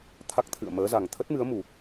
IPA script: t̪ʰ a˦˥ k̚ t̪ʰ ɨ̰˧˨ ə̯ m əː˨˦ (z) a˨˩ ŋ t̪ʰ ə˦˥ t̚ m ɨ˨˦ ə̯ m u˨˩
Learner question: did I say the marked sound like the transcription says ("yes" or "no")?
yes